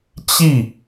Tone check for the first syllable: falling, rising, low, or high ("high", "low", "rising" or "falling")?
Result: falling